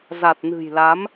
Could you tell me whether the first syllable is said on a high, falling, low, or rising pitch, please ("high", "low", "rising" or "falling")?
low